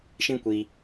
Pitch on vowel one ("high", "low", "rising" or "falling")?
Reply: high